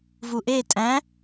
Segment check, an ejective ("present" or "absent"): present